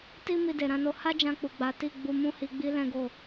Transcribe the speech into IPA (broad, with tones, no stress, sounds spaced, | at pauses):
t i˦ m i˧ d e˨ ɾ ã˧ n o˧ h a˦ d͡ʒ ã˧ k͡p u˨ ɡ͡b a˨˦ t i˦˨ ɡ͡b u˧ m ũ˦ h i˧ ɡ͡b i˦ l ɛ̃˦ ɡ o˦˨